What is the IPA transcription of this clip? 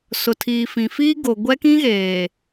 s ʊ˨ tʰ iː˨ f ĩ˨ f iː˦ ɡ o˨ ɡʷ ɛ˦ k ĩ˦ ɣ eː˨

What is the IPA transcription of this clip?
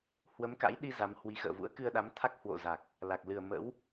h w ə˨˦ m k a̰˧˥ j ɗ i˧ z a˨˦ m h w i˨˦ x ə̰ː˧˨ v ṵ˧˥ ə̯ k ɨ˧ ə̯ ɗ a˨˦ m t̪ʰ a˦˥ k̚ h w o̰˧˨ z a˨˩ k̚ | l a˨˩ k̚ l ɨ˨˩ ə̯ m ə̰˧˥ w

